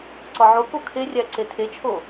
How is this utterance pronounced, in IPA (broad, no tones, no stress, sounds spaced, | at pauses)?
ǀ ɒ ʕ o k o kʰ e rʲ æ ǀ e tʰ e t͡ʃʰ o